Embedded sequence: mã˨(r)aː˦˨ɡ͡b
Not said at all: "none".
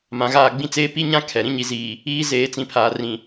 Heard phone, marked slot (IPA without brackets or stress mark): ɣ